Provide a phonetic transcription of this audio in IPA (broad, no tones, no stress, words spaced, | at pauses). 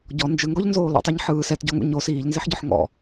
ɟɔ nd͡ʒɯŋɡɔʎnzoː lɔ̰tˤɛɲ ħɯː sɛtɟɔŋṵ ɲo siːʎnzeħɟɔħ ŋɔ̰